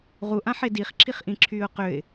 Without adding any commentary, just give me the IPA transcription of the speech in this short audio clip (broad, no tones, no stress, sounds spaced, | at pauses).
ʁ u ʔ ã ħ e d i χ ǁʰ i χ ʔ ĩ ǁʰ yː ʊ̯ q ø ɪ̯